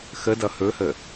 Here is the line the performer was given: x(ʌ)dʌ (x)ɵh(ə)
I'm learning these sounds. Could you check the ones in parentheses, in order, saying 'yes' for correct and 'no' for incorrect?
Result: no, no, yes

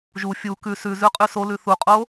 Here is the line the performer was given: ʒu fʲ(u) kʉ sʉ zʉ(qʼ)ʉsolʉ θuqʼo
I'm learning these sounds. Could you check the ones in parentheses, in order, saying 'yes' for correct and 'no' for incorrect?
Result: yes, yes

